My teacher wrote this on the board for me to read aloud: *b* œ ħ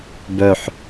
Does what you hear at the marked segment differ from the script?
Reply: no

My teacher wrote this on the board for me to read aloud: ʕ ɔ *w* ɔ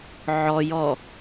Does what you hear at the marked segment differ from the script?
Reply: yes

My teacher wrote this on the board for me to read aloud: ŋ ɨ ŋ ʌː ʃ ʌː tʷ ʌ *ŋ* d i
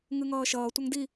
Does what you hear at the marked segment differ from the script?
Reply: no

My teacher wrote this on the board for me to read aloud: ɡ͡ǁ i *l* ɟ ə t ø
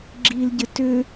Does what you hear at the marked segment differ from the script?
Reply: no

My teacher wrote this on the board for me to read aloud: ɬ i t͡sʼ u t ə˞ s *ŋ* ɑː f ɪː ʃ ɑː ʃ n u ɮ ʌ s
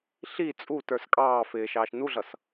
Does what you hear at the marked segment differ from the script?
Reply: yes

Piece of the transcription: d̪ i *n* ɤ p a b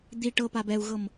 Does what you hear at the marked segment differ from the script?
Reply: yes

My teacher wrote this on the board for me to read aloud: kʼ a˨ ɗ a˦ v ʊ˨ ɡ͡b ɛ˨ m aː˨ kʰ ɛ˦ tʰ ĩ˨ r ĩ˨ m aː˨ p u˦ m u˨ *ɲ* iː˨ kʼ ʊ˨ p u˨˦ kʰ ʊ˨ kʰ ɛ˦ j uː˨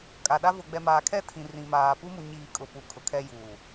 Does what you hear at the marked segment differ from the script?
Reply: no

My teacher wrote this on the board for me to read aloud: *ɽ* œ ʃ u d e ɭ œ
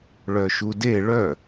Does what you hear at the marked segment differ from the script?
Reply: yes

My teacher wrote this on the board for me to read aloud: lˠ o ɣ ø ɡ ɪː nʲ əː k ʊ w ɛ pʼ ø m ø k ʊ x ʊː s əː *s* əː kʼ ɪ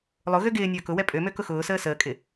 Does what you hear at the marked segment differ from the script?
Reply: no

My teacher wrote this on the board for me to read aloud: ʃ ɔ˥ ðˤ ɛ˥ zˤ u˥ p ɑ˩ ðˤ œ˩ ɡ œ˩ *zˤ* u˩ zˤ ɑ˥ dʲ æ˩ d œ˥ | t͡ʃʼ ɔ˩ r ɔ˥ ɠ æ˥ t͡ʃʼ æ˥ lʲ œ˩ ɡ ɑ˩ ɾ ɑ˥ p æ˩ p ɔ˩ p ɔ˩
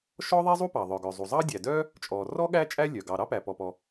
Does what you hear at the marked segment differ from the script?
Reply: no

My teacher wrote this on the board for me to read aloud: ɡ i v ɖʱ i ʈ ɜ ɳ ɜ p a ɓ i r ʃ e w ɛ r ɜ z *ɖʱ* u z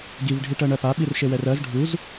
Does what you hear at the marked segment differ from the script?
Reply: no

